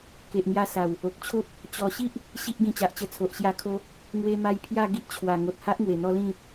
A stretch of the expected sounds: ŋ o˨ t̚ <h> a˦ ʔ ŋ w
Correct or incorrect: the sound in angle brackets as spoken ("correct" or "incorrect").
correct